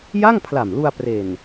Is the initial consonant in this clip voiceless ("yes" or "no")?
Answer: no